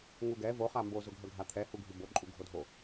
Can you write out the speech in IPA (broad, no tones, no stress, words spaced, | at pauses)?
ŋuɡɛ vo χambo zʊɡʱœɡʱat̪ʰɛ huɡʱybo ǃʼuɡʱodʱo